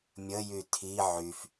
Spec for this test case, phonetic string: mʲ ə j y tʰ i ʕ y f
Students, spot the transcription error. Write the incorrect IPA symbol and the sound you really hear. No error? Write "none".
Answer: none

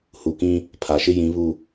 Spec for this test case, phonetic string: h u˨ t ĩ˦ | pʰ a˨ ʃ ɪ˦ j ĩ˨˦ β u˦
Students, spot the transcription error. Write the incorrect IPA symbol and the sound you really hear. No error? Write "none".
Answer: t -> k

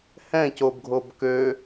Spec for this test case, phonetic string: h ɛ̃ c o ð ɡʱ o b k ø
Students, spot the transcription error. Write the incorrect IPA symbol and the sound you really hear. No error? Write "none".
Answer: ð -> b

